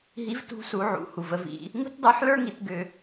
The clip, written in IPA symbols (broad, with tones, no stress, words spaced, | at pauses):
ɦi˧˥vtṳ˧˥ su˩˧ʕṵ˩˧hu˩v ə˩˧vḭ˩˧ | ŋṳ˥tdˤə˞˧˥ħlə˞˥ŋi˩˧t ɡʏ˧